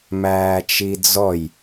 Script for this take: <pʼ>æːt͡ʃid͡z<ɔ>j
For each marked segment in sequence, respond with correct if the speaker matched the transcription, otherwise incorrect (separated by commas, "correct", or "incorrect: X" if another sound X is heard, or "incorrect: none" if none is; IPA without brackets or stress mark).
incorrect: m, correct